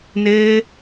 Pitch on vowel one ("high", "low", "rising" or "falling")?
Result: high